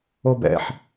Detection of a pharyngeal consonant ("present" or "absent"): present